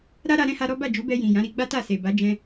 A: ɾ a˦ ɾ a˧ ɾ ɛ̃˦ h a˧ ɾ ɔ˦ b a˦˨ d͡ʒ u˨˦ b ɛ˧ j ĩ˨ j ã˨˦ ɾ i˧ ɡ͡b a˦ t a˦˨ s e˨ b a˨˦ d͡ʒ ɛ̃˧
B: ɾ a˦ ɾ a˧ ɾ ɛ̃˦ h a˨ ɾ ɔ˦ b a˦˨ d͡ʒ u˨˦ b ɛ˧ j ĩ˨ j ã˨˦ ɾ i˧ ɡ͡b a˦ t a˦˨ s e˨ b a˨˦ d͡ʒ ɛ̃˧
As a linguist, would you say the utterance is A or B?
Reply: A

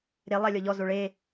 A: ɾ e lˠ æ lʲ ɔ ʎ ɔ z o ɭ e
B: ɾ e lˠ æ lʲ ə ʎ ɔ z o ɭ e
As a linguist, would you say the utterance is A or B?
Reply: A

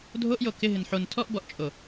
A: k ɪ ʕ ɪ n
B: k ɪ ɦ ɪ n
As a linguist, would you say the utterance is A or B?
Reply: B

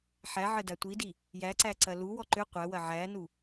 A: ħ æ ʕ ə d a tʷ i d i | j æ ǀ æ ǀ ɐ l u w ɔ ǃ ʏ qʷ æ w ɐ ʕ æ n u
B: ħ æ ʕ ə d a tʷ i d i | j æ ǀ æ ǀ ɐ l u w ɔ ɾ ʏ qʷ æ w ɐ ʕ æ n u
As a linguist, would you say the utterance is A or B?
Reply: A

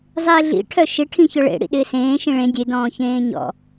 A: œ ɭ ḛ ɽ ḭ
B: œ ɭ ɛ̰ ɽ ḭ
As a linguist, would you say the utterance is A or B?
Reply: A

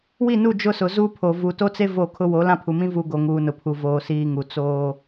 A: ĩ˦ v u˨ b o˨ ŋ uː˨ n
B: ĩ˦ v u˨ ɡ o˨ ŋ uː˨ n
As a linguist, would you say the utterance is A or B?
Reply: B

